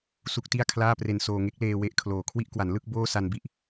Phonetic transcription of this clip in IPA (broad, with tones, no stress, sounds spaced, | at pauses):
s u˦˥ k̚ t i˥˩ a̯ kʰ l aː˥˩ p r e˧ n s oː˧ ŋ e˦˥ k̚ l eː˧ w e˥˩ ʔ kʰ l oː˨˩ kʰ w i˦˥ ʔ k w a˩˦ n l ɯ˥˩ k̚ b oː˥˩ s a˧ n b i˦˥ ʔ